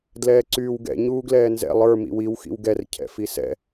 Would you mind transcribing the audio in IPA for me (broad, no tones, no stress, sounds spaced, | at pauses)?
d l ɛː ǀ yː w ɡ ɛ̰ ɲ uː ɡ l ɛː n z ɛ̰ lˠ ə˞ m ḭ w i w x ḭ w ɡ ɛ r cʰ ɛ̰ f i s ɛ̰